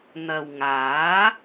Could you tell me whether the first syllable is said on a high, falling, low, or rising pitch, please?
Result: low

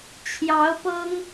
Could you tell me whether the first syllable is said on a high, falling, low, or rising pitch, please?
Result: rising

